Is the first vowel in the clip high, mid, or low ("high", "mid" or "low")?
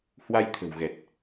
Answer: low